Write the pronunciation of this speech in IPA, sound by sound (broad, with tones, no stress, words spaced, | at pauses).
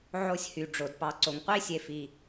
ʕo˥sʲhy˩ɖ͡ʐo˩dpɑ˨ ǀo˩ŋqʷi˥sʲe˨fi˩